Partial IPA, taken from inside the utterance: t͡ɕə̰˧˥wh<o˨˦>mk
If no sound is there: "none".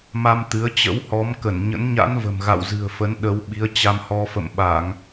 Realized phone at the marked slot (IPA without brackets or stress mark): ɔ˨˦